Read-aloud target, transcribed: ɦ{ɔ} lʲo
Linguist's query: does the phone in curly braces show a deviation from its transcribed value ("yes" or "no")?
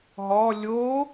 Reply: no